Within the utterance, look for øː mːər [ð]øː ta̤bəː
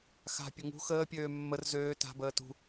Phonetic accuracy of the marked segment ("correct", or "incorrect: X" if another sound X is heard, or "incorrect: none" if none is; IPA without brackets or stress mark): incorrect: z